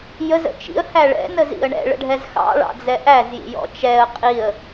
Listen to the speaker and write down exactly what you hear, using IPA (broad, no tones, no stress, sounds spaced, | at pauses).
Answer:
j ə z ə̰ t͡ʃ ḭ ə̯ h æ ɭ ɛ̰ n ə z ḭ ə̯ ɳ ɛ̰ ɭ ə̰ ɖʱ ɛ z x ɑ̰ ɭ ɑ̰ d͡z ɛ ʔ æ z j ḭ j ɔ̰ t͡ʃ ɛ ə̯ qʼ i ə̯